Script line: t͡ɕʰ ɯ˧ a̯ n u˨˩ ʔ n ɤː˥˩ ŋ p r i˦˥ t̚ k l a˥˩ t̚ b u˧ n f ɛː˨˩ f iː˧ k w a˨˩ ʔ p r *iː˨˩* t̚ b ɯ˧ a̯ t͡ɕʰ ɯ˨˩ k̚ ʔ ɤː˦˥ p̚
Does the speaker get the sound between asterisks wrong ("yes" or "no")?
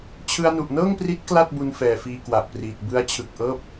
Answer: no